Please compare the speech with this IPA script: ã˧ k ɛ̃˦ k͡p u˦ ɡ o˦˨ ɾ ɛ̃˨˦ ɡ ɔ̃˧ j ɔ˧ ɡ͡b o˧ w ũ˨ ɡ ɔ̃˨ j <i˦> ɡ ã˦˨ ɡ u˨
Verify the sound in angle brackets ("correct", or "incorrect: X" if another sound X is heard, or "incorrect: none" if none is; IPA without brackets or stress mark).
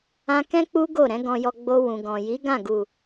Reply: incorrect: i˨˦